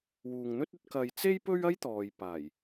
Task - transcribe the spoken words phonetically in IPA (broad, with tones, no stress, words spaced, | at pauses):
wuː˨ŋn̪ɵ˥t̚ɵ˧t̚ kɐ˨j t͡se˥j pɵ˥ɥɐ˥jt̪ɔː˨j paː˨˩j